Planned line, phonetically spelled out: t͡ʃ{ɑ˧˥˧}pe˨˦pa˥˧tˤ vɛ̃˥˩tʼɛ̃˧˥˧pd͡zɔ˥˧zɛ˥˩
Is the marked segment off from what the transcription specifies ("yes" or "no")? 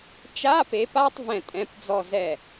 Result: yes